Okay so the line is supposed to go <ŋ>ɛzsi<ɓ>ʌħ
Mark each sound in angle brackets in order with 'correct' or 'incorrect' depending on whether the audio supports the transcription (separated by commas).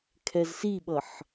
incorrect, correct